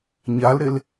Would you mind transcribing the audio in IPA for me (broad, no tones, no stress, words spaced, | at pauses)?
ɲalɾel